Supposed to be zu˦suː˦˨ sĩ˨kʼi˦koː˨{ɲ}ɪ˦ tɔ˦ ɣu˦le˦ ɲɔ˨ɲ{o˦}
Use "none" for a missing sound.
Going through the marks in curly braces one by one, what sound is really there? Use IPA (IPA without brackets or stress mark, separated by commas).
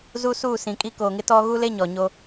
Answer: ŋ, o˦